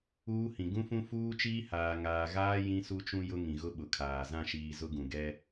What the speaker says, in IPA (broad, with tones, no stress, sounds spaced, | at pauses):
uː˦ h ĩ˨ ɡ ũ˦ f ũ˦ f uː˦ t͡ʃ iː˦ h aː˨ ŋ aː˨ ɣ aː˦ j ĩ˦ s u˦ t͡ʃ ũ˦ j ʊ˦ ŋ ĩ˨ ɣ ʊ˦ ɓ ʊ˨ kʰ aː˨ z ã˦˨ ʃ iː˨ z ʊ˦ ɡ ũ˨ ɡ ɛ˦